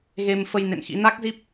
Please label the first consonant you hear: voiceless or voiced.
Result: voiced